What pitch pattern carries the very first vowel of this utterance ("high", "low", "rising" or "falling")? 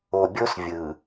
low